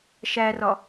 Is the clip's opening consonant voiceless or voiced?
voiceless